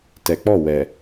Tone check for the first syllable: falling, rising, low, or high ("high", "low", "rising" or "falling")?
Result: low